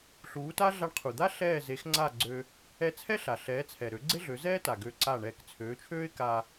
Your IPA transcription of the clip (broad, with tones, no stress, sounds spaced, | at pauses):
ɬ uː˩˥ t a˥ ɮ a˧ ɳ qʰ u˩ d̪ a˥ ɬ ɛː˥˩ z e˩˥ x ŋ͡ǀ a˥˩ ɡ͡ǀ ø˧ | ɛ˧ t͡sʰ ɛ˥ ɬ a˩ ɬ ɛː˩˥ t͡sʰ ɛ˩ ɾ ø˩˥ ɡ͡ǀ e˥ ɮ ø˩˥ z ɛː˥ t a˩ ɡ ø˧ ǀ a˥˩ ɳ ɛː˧ k t͡sʰ øː˩˥ t͡ʃʰ øː˥ ɪ̯ k a˧